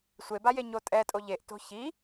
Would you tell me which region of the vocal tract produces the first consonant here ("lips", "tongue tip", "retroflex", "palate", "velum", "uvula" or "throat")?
tongue tip